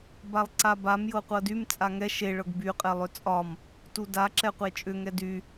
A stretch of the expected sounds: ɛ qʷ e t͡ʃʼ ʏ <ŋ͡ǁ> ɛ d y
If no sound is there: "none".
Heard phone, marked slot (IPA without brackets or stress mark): ŋ